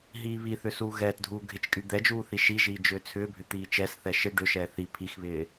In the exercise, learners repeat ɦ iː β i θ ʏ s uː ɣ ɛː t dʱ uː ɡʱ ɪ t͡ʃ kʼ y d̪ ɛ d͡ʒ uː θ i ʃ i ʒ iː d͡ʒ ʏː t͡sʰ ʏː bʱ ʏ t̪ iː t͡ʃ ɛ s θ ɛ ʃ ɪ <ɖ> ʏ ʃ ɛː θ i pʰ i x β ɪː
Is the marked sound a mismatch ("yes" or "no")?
no